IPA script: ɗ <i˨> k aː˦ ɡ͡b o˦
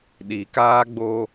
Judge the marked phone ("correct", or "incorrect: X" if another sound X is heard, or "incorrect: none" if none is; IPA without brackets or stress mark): correct